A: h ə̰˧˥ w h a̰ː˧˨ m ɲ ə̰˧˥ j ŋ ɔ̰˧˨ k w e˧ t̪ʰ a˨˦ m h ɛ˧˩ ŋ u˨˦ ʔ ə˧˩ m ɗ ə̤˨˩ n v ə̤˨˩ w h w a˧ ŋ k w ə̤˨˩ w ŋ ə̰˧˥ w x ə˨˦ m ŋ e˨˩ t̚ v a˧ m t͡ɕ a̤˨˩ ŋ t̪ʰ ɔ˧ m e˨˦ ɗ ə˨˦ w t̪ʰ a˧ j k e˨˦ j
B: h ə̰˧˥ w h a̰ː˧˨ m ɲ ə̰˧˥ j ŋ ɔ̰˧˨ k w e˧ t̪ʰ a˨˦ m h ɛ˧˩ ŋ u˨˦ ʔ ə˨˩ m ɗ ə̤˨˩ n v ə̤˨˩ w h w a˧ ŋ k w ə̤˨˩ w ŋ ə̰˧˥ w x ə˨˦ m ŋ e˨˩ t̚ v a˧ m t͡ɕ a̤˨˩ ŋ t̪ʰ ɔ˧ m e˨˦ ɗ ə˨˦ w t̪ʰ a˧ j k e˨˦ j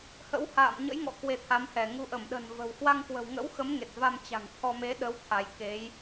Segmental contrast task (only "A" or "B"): A